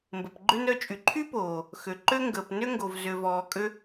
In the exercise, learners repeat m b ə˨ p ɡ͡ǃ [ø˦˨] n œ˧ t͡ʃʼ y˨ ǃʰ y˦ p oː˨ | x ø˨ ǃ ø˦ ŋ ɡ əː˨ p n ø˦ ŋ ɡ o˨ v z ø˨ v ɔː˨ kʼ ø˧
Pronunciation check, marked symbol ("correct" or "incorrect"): incorrect